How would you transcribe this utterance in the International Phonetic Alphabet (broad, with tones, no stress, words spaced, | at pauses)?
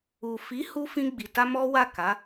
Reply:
u˨fi˨˦hu˧ fĩ˧ɡ͡bi˨ta˧ mɔ˦wa˦˨ka˨˦